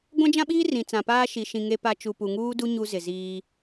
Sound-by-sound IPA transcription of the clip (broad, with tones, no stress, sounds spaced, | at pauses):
ɡʷ ã˦ d͡ʒ ã˦ ɓ iː˦ r ĩ˨ t͡s ã˨ p aː˦ ʃ i˨ ʃ ĩ˨ ŋ e˦ p a˦ t͡ʃ u˨ p u˨ ŋ uː˦ d u˦ ɲ u˦ z ɪ˨ z iː˦